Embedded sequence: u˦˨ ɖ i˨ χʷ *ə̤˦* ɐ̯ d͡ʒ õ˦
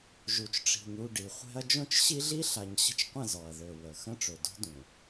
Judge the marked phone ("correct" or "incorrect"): incorrect